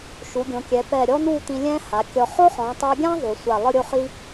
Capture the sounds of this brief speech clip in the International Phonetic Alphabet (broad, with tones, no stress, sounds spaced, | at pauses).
ʃ u˩˧ ɡʲ õ˩˧ kʲ ɛ˩˧ p ɛ˧˩ ɾʲ ɔ˥ n̪ u˥˧ t̪ ĩ˧ lʲ ɛ̃˥ h a˩˧ kʲ ɔ˧ χ o˥ χ ɔ̃˩˧ tˤ a˧ ɡʲ ã˥ ðˤ u˩˧ sʷ a˧˩ lˠ ɯ˥˧ ɾʲ o˥˧ χ i˥